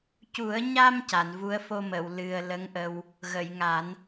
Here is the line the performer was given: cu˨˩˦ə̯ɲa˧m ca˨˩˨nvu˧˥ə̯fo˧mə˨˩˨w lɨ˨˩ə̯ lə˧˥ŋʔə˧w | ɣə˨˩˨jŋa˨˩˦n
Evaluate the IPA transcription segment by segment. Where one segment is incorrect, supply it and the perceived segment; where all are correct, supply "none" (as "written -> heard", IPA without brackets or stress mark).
none